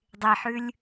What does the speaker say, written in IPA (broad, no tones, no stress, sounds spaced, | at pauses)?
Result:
dˤ e ħ ʉ lʲ